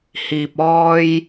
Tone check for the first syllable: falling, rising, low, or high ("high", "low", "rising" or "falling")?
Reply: low